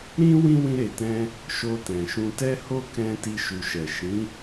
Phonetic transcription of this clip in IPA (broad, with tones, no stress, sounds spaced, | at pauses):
ɾ ĩ˦ w ĩ˦ w ĩ˧ ɾ e˨ t ɛ̃˧ | ʃ o˧ t ɛ̃˨ ʃ ũ˧ t ɛ˦ h o˦ k ɛ̃˦ t i˧ ʃ u˨ ʃ ɛ˨ ʃ ĩ˨˦